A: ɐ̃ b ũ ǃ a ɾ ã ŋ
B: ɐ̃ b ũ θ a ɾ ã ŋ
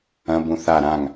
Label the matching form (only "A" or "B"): B